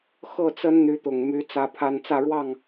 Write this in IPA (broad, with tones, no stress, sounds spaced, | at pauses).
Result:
x ɤ˥˨ t͡s ə˦ n n̪ y˨˦ t̪ ʊ˨˩ ŋ m y˨˦ t͡s ä˦ pʰ a˦ n t͡s ä˥˨ ɻ w ɑ˥˨ ŋ